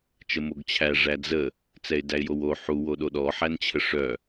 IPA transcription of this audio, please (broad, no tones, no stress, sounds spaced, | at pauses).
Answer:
t͡ʃ ə m o ɡ t͡ɕʰ æ ʐ æ d͡z ə | t͡s ɛ ɪ̯ d æ ɪ̯ j o w o ħ u w o ɗ o ɗ ɔ ħ æ n t͡ɕʰ ə ʂ œ